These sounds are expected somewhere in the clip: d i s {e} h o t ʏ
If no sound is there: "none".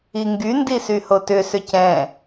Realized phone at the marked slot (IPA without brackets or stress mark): y